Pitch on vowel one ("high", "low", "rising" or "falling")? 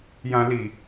low